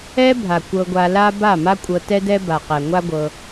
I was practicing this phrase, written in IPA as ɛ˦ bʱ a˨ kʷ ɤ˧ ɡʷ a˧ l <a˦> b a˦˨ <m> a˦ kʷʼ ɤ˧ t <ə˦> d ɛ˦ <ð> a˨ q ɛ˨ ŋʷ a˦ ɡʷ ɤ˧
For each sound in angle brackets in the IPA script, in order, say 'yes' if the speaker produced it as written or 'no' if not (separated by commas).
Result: yes, yes, no, no